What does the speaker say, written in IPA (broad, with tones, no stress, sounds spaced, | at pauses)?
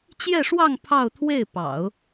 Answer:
t͡ɕ j ɛ˥˧ ʂ w ɑ˥˧ ŋ pʰ ɑ˥˧ ʊ̯ t̪ʰ w e˥˩ ɪ̯ p ɑ̰˨˩˦ ʊ̯